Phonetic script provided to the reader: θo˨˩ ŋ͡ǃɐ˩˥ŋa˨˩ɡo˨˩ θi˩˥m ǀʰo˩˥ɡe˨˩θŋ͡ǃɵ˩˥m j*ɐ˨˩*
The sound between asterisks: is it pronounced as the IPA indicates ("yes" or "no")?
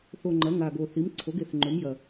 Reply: yes